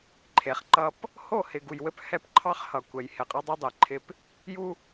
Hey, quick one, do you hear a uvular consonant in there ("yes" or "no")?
yes